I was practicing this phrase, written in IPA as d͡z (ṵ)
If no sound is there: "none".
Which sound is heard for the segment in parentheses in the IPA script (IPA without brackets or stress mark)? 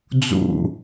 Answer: ṵ